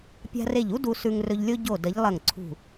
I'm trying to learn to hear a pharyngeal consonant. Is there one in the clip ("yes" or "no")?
no